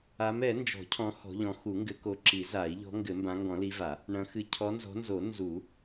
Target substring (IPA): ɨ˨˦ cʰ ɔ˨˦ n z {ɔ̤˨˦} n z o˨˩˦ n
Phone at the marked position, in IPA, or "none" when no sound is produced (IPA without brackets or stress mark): ɔ̤˨˦